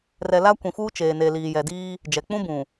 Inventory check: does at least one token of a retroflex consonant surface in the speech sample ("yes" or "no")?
no